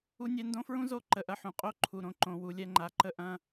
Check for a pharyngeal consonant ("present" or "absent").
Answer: present